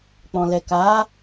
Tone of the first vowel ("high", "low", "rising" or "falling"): low